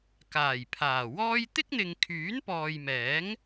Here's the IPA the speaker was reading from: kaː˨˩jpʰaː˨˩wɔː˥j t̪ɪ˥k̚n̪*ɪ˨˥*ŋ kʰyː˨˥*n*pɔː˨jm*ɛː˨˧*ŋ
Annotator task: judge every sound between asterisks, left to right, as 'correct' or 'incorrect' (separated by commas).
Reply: incorrect, correct, incorrect